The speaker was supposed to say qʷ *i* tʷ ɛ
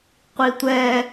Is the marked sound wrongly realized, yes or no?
no